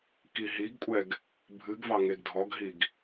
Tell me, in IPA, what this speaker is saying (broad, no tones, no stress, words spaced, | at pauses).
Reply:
kiɦiɡkʷʼɛɡ | bʱɨɡvɑ ŋeɡdʱɔɡɦiɡ